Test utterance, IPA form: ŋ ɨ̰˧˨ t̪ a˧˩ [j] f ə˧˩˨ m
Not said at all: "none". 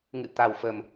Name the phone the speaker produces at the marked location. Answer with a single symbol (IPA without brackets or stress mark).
w